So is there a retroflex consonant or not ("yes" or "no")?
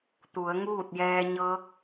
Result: no